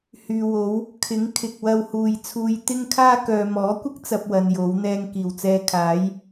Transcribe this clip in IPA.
hyː˨wo˨˥w | kʰɪ˨˥ŋkʰɪ˨k̚ wɐ˧whuː˨jt͡sʰuː˧j t̪ɪ˥ŋkʰaː˥ kœː˨mɔː˨˥kʷɪ˥k̚ t͡sɐ˥p̚ wɐ˧njo˨˥wn̪ɛː˥ŋ kiː˨˩wt͡sɛː˧kʰaː˨˥j

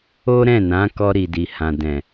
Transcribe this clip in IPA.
o˦ ɾɛ̃˦˨nã˨˦ kɔ˧ɾi˨di˨ hã˨dɛ̃˨

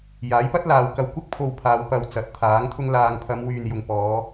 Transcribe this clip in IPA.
jaː˨˥jpɐ˥t̚laː˨˧w kɐ˨wkʷɪ˥k̚pʰo˨w pʰaː˨˧w pɐ˨w t͡sɐ˨˥t̚t̪ʰaː˨˥ŋ t̪ʰʊ˧ŋlaː˨ŋpʰɐ˨˧m wyː˨njʊ˨ŋpɔː˨˧

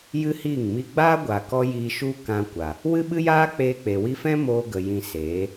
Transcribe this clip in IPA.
jɨ˦hiː˦˨ŋmi˦ ɡ͡baː˦ɡʷa˨kɔ˧ jiː˧ʃu˦ kã˧kʷa˨ | wɨ˦ɓɨ˦jaː˦ k͡peː˧ k͡pe˨wi˧fɛ̃˦ moː˧ɡə˨ jĩ˧ seː˨˦

